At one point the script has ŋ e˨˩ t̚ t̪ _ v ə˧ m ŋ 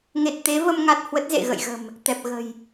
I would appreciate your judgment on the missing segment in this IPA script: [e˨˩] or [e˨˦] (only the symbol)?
e˨˦